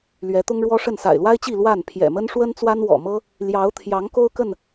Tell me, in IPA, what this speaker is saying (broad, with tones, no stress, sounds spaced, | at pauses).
l ɥ ɛ˨˦ t̪ ʊ˦ ŋ ɻ w ɔ˦ ʂ ə˥˨ n s a̰˨˩ ɪ̯ l w a˦ ɪ̯ t͡ɕ i˥˨ l w a˥˨ n pʰ j ɛ̰˨˩ m ə˦ n ʂ w ə˦ n t͡s w a˦ n w ɔ̰˨˩ m ɤ˦ | l j ɑ˨˦ ʊ̯ t̪ʰ j ɑ˨˦ ŋ k o˦ ʊ̯ k ə˥˨ n